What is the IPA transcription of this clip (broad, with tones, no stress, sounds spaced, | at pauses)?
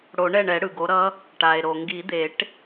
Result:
ɽ o˨˩˦ ɳ ɛ˥˩ ɳ ɛ˨˩˦ ɽ ɯ˩ ɡ o˩˥ ɾ ʌ˦˥ | ʈ a˩ e̯ ɾ o˩ ŋ ɡ i˨˩˦ d̪ e˨˩˦ ʈ